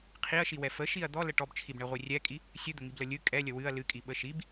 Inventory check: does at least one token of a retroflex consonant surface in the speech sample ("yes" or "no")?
yes